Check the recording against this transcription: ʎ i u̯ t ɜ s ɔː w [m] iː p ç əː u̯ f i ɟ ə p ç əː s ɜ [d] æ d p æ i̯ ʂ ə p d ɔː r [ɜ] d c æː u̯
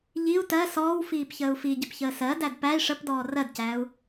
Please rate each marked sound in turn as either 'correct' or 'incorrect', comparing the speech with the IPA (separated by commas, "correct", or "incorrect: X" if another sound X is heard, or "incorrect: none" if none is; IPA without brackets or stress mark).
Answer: incorrect: f, correct, correct